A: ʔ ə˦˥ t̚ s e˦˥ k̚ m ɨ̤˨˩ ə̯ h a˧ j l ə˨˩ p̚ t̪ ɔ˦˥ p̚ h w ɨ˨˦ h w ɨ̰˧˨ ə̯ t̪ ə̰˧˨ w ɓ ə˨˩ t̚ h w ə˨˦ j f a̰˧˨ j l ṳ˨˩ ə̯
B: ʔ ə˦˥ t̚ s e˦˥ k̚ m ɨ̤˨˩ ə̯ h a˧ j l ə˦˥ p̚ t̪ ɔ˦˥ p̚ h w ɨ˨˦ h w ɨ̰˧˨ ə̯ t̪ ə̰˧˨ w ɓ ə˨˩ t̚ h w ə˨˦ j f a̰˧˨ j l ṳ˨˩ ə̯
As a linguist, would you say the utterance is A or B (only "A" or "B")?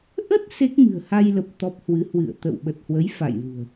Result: A